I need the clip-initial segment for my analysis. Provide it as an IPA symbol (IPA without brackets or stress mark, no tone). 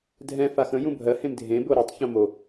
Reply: dʱ